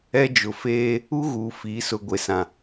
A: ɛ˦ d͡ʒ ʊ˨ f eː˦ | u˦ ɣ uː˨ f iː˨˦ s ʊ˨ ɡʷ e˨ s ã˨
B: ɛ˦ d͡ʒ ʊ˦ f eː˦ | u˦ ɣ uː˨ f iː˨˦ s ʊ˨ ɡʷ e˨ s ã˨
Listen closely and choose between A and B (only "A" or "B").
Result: A